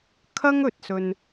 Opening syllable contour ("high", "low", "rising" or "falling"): high